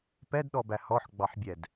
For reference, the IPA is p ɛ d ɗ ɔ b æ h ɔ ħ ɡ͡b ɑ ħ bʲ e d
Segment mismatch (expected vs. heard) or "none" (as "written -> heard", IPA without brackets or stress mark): e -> ɛ